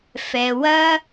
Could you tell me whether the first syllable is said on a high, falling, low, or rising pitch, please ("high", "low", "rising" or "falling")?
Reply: low